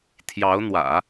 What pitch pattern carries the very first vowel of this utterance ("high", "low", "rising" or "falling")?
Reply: rising